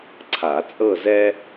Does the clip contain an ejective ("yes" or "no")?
yes